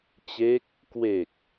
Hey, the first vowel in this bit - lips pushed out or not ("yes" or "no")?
no